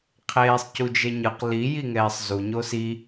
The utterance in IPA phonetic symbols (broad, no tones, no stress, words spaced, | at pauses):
qʰeːsˤcud͡ʒeɲɯq li jiŋɛːsˤzu ɲosi